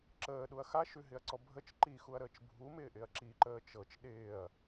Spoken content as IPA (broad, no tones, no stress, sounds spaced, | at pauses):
ǁ əː ɗ u ɐ̯ x a ʃ ʉ ɦ ɪ ɐ̯ ǀ ɔ bʱ ə t͡ʃ ǃ i x u ɐ̯ ɾ əː t͡ʃ bʱ u m ɪː ʔ ɪ ɐ̯ ǁ i ǃ əː t͡ʃ ɤ t͡ʃ ɗ ɪː ɐ̯